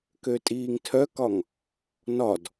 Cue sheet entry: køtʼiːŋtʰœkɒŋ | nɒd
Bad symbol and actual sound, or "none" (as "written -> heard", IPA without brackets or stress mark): none